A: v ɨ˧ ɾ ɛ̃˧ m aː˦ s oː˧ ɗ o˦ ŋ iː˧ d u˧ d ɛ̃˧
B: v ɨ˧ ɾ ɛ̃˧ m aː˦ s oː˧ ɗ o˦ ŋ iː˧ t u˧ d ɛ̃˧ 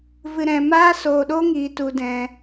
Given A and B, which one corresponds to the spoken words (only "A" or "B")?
B